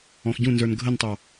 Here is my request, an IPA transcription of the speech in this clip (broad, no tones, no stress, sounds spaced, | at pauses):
ɔ̃ x ɟ ũ n z ə˞ n ɡʱ ə n tˤ ɑ